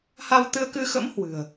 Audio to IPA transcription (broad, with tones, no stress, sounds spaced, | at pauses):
h a˧ w t̪ ɨ˧ ə̯ k ɨ˧ x ə̰˧˥ m h w ɨ̤˨˩ ə̯